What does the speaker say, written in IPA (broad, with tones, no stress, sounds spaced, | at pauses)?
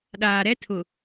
ɗ aː˨ ɾ ɛ˦ tʰ ʊ˨